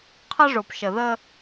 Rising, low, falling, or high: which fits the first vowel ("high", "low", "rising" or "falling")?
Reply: high